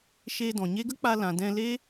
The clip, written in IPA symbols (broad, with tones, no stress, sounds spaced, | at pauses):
ʃ e˧ d ɔ̃˨ ɲ e˦ ɡ ə˦ k͡p a˧ l ã˨ d ɛ̃˧ l e˦